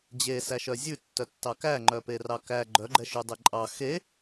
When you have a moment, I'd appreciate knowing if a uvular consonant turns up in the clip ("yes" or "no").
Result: no